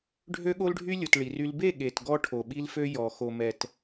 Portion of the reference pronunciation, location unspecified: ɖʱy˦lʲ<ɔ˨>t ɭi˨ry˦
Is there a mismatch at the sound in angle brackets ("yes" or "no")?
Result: yes